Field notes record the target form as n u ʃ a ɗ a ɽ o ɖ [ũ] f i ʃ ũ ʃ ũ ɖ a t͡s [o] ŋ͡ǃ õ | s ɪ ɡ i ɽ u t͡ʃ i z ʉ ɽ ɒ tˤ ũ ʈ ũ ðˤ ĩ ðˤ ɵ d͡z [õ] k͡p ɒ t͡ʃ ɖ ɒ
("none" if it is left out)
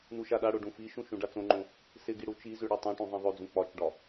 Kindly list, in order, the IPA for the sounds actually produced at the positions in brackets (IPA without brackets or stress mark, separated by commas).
ũ, õ, ũ